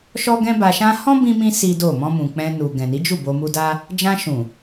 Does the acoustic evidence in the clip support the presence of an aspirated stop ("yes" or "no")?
no